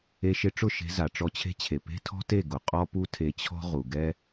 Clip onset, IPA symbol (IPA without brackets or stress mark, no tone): e